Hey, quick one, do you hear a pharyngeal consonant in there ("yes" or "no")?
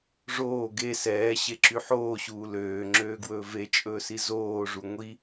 yes